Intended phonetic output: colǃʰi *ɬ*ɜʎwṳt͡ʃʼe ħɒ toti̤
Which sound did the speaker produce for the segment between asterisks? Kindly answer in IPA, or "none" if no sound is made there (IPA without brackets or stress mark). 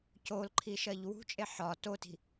ʃ